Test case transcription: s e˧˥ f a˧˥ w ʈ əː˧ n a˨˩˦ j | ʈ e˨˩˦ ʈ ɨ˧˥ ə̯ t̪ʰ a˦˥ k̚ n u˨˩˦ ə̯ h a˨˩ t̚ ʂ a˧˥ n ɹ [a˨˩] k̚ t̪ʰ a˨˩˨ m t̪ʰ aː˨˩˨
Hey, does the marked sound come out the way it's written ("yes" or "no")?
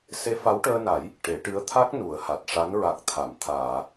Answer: yes